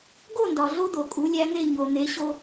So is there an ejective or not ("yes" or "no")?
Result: yes